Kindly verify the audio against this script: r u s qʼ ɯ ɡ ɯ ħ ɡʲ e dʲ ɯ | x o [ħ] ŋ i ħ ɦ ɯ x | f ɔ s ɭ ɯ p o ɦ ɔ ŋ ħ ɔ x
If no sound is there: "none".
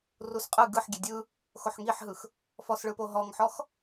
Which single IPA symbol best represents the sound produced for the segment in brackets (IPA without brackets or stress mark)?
ħ